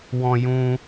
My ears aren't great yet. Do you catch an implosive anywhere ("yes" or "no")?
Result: no